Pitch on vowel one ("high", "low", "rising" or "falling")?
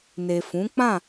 low